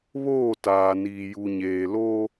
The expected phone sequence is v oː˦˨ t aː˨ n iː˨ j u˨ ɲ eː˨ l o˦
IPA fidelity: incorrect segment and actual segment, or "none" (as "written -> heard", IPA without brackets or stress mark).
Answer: v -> β